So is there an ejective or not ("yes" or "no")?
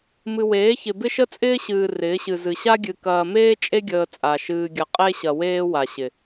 yes